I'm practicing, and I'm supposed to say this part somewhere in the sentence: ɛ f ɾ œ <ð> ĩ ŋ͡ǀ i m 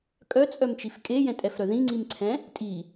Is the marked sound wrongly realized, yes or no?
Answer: no